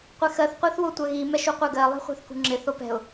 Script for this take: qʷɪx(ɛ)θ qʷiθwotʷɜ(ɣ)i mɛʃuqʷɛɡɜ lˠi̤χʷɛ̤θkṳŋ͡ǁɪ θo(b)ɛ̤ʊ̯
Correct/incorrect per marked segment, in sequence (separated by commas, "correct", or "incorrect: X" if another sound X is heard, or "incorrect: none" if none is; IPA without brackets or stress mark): incorrect: ɜ, correct, incorrect: p